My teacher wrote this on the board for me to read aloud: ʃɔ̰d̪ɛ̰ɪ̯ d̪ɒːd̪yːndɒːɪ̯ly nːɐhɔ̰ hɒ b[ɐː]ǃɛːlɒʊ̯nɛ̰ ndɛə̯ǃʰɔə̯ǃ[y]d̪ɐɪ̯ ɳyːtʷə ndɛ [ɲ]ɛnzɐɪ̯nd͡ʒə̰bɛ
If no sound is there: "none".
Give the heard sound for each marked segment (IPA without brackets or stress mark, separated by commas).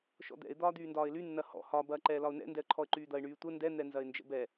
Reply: ɐː, yː, n̪